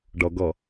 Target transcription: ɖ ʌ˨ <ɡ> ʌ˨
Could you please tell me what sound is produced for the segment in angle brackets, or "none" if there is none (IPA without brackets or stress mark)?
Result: ɡ